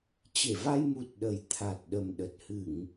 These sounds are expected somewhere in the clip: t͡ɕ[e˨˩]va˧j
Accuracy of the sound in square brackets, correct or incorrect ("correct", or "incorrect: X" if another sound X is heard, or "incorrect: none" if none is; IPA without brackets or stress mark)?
incorrect: e˧˩